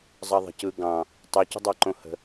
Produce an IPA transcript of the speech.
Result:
zˤɑðˤə̤ cɯ ɡɑ̃ | tˤucə̤dˤɑ ǃõhə̤

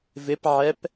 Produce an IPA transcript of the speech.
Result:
vɪpʕɛp

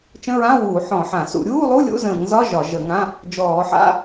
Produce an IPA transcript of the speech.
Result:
t͡ʃə̃˧˥˧ɹã˧˥˧wuː˧˩˧ ħɔ̃˧˩˧ħã˧˩˧ sṵ˧˩˧ ɾʲuː˧˥˧lˠu˧˥˧lʲṵ˧˥˧ zə̃ː˧˩˧ŋzɒ˧˥˧ ʒɒ˧˩˧ʒə˧˩˧ŋã˧˥˧ | d͡ʒɔː˧˩˧ħa̰˧˥˧

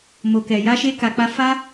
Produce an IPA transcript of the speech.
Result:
mo˨kɛ˨ ja˧ʃe˧ka˨k͡pa˧ fa˦

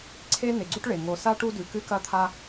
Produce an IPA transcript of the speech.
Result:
ǀʰe˥ ne˨ɡ͡ǀu˦ʈɭe˩ ŋo˨sa˥ʈu˦ dʉ˨kɨ˦kɐ˦t̪ʰa˦

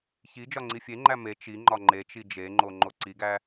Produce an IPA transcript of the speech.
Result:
çi d͡ʒɒŋ͡ǀifʲeŋ͡ǃæ me t͡ʃiŋ͡ǃɒ ŋ͡ǃet͡ʃi d͡ʒeŋ͡ǃo ŋ͡ǃoǀiɡæ

